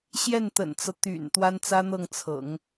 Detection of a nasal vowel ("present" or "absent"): absent